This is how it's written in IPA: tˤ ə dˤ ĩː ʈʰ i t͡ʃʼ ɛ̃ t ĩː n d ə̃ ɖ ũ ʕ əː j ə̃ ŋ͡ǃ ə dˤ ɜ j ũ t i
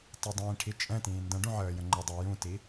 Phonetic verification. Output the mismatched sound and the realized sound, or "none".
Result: none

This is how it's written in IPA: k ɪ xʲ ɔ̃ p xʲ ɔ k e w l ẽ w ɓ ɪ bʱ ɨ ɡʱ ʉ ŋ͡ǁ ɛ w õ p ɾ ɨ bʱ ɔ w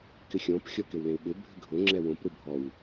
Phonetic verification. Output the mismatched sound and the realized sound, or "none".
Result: ʉ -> ʊ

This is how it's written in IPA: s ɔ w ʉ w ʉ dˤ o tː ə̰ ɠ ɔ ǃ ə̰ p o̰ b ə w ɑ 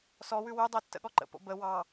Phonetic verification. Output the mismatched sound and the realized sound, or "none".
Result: none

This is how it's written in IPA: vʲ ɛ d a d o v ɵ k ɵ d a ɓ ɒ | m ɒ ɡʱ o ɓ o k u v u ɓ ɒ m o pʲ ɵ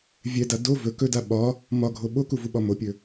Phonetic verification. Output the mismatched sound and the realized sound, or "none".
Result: none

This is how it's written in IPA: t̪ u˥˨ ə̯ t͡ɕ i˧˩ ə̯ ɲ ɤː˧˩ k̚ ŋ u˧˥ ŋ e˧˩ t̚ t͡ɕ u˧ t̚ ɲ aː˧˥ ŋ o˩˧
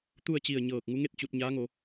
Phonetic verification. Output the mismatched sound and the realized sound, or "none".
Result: e˧˩ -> e˥˨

